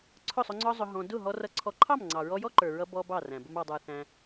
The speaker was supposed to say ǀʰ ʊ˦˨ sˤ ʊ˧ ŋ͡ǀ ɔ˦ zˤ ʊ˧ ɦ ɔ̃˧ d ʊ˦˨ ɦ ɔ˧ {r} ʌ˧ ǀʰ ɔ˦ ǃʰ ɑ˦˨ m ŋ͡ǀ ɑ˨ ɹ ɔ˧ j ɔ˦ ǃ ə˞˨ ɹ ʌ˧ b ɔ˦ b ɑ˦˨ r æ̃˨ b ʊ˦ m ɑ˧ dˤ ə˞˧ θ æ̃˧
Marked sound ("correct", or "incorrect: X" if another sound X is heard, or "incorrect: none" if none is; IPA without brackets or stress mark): correct